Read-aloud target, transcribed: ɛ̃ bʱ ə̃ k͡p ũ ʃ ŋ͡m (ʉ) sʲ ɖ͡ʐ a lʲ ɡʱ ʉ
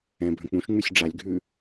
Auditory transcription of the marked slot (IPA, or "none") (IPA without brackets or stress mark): ʉ